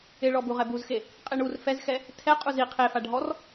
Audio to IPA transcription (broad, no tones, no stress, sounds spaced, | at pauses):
ɪ ɭ ɔ b u ʁ ɛ b u z x e | qʼ e ɳ u r f ɛ z x ɛ | tʰ ɛ qʼ u z i qʰ e f a ɖʱ ɔ r